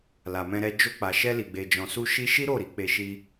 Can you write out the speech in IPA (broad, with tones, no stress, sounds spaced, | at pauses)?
l a˨ m ɛ̃˧ ɾ ɛ˧ d͡ʒ o˧ k͡p a˨ ʃ ɛ˧ l i˨ ɡ͡b e˨ d͡ʒ ɔ̃˨ s u˧ ʃ i˦ ʃ i˦ ɾ o˦˨ ɾ i˧ k͡p e˧ ʃ i˦